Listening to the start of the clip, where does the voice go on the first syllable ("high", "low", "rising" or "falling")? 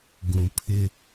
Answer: low